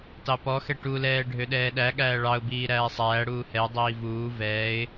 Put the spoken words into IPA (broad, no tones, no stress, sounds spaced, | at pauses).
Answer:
t ɑ p ɔ x ɛ ʈ u l ɛː ɖʱ ø ɗ ɛː ɗ æ ɠ æː ɭ ɑ ʊ̯ b iː ɾ æː sˤ æː ɽ uː h ɛ ʊ̯ dˤ iː v uː v ɛː ɪ̯